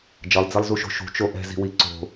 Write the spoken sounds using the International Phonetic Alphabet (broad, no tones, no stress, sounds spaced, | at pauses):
d͡ʒ ʌ lˠ d͡z i lˠ z u ʃ o̤ ʃ ṳ t͡ʃ o ʔ ɛ̤ z i̤ w i ǀ o̤